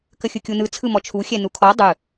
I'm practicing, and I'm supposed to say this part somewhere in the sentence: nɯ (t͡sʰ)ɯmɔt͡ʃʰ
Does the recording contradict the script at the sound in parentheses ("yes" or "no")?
no